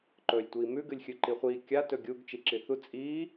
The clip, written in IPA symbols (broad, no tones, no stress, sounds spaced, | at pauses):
ǃ ɵː lʲ tʷ iː m ʉ ɡ ɨ lʲ xʲ ɨ ǃ i χʷ iː kʲ a t ɵ ɡʲ u ɡ t͡ʃ i ǁ i θ u t͡sʼ iː